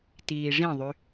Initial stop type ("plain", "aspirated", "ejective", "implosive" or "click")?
plain